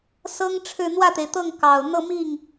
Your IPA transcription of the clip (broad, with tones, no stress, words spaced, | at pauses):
sɤ˥ŋʈ͡ʂʰɻ̩˥˧ n̪wä˥˩t̪e˩ɪ̯t̪ɤ˥˩ŋ kɑ˨˩ʊ̯ n̪ɤ˥˧mi˥˩ŋ